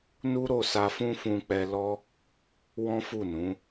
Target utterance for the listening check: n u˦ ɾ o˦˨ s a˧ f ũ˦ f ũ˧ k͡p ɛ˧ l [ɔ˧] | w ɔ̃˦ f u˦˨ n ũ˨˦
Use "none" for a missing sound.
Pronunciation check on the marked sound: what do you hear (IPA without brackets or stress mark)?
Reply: ɔ˦